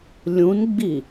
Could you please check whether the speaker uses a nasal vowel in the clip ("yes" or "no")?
yes